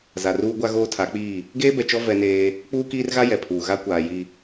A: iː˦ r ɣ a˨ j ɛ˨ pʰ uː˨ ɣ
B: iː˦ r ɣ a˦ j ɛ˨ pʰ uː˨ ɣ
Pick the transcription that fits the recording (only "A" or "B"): B